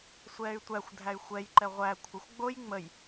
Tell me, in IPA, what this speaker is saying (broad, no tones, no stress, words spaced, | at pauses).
sʷɛːy̯tʷæxʷ dʱæy̯xʷɛjǃɛ ʁʷæ kʷʰəxʷ ɡ͡boj ŋ͡məj